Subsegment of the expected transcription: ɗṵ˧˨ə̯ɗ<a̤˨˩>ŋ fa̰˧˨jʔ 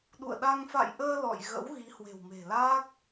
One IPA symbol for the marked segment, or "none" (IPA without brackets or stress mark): a˧